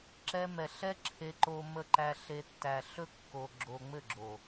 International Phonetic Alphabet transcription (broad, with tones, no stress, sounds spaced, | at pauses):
ǁ ɛ˧ m ɛ˨ ɬ ɛ˦ ǁʰ e˧ ǃ o˧ m ə˧ ǃ æ˧ ɬ e˧ tː æ˨ ɬ ɵ˦ kː o˧ ɡ͡ǁ o˧ ŋ͡m ɘ˦˨ ɡ͡ǁ o˨